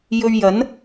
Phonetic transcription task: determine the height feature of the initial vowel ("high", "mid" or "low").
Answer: mid